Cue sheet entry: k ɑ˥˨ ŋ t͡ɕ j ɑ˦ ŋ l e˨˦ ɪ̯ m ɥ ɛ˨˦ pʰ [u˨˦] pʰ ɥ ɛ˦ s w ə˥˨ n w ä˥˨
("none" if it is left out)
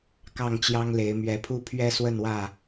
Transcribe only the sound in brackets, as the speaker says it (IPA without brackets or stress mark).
u˦